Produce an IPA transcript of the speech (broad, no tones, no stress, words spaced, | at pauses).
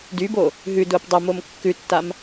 dybo | ɦʉdʊːp dˤʊmom kːʉtːam